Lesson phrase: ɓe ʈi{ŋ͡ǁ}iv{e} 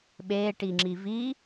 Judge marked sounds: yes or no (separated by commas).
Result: yes, no